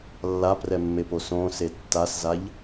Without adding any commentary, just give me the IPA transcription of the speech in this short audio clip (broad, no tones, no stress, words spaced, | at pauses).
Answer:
lːaprɛmːepo sõse tːaszaʎ